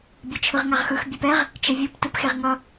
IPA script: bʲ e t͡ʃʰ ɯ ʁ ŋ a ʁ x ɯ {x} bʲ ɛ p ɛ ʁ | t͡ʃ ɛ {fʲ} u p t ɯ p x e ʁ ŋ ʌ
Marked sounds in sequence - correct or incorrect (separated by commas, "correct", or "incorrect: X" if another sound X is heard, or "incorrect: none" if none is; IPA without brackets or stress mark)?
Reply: correct, incorrect: vʲ